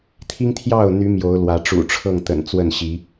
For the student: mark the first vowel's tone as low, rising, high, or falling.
high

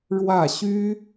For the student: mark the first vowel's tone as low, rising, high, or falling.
falling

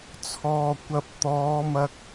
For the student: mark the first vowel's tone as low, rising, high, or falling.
low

